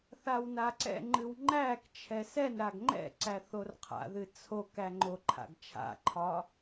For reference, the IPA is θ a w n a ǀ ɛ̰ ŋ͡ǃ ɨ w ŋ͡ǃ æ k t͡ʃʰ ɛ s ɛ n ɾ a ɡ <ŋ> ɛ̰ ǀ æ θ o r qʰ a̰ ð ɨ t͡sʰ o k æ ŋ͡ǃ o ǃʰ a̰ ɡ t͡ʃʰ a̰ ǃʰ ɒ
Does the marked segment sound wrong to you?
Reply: yes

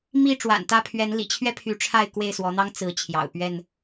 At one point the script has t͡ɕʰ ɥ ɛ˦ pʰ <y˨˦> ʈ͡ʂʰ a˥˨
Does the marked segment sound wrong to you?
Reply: no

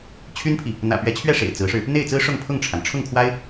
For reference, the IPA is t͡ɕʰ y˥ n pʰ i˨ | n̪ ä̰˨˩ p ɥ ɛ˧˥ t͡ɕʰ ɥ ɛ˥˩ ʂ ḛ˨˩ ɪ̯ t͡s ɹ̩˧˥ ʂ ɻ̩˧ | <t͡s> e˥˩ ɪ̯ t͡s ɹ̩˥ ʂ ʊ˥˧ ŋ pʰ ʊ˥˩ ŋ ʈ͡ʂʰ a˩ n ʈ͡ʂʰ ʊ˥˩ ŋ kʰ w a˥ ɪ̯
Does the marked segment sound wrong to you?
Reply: yes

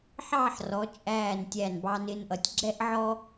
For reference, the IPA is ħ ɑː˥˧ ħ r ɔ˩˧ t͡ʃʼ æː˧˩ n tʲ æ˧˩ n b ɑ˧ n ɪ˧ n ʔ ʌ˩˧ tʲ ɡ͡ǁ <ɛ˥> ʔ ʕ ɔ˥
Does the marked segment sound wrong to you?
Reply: no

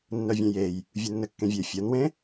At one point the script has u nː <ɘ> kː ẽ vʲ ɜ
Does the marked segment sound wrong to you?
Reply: no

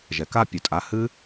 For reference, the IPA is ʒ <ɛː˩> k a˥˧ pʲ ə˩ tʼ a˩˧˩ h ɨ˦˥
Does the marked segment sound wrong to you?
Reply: yes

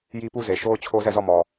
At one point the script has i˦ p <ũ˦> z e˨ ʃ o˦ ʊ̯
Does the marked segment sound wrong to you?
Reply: yes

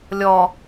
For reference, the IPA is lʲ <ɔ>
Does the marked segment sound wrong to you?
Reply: no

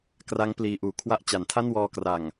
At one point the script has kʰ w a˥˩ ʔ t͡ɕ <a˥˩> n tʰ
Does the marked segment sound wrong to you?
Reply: yes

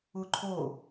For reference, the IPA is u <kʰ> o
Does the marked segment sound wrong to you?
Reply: yes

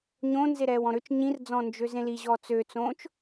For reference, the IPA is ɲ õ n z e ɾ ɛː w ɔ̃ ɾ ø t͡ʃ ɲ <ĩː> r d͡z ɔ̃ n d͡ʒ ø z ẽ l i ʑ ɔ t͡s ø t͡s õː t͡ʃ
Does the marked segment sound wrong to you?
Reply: yes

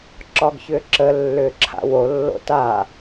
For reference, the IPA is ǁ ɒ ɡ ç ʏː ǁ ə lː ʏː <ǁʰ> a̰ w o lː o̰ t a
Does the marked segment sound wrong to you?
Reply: no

